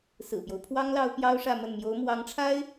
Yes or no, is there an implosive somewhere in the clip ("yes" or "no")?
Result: no